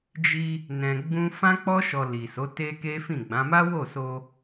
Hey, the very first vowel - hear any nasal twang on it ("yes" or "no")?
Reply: no